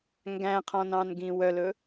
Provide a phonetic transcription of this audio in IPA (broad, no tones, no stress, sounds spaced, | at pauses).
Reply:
ŋ ɡ æ̃ qʰ ɔ̃ n ɑ̃ n ɡ ĩ w œ l ɵ